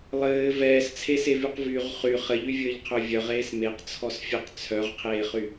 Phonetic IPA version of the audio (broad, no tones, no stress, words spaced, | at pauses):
lˠɘː vɛːst͡sʰesevyq vyʁ χy χɘʎyvʲɘːʎqʰœ vʲœʁeːs meqt͡sʰɔsfʲɛq t͡sʰœʁqʰeːχy